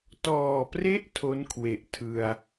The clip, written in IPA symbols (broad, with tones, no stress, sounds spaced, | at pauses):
t ɔː˨˩ p r e˦˥ ʔ tʰ o˦˥ n kʰ w e˨˩ ʔ tʰ ɯ˧ a̯